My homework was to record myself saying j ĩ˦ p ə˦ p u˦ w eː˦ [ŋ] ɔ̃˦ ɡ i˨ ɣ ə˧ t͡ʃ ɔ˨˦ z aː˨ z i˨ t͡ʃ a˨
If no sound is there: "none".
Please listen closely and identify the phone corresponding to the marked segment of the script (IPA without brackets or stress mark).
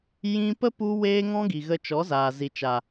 ŋ